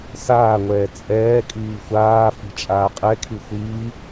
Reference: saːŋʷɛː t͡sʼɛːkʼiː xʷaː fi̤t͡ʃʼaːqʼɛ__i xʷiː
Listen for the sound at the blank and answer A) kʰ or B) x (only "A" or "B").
A